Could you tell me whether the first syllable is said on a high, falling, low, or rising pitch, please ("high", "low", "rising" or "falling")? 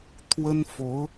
high